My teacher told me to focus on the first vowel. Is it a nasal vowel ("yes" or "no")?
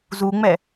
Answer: no